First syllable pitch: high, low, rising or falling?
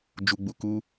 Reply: low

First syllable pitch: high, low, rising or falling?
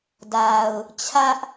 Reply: low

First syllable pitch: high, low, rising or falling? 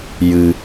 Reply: low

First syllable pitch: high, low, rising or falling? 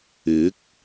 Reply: rising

